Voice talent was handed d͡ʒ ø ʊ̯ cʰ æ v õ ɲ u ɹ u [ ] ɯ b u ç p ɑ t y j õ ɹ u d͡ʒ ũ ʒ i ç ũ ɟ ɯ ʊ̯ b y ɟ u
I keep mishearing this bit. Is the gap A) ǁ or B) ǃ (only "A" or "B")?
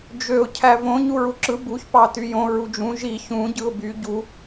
A